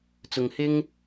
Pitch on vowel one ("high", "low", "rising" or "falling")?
low